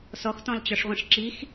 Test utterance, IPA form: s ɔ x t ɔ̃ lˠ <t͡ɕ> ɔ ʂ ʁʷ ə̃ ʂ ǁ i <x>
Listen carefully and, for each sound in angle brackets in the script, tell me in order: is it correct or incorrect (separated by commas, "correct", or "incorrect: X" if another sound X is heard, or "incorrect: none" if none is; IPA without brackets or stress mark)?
correct, correct